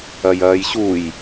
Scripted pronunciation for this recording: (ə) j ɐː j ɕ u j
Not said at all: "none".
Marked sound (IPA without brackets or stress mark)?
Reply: ɐ